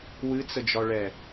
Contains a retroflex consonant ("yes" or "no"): yes